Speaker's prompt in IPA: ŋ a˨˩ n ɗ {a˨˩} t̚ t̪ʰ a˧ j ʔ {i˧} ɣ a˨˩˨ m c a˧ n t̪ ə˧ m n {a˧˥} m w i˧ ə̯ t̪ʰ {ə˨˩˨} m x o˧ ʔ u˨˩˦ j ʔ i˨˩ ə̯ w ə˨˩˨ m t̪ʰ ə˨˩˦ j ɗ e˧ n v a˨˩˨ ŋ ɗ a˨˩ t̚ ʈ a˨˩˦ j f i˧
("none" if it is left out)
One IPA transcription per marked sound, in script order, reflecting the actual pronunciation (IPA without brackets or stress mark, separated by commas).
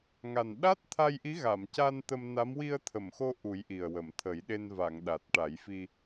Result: a˦˥, i˧˥, a˧˥, ə˨˩˨